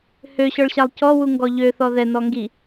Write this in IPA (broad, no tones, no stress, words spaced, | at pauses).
høɕɔɭɕalˠ cɔwuŋɡɔ ʎøθɔ ðɛnɔ ŋɡi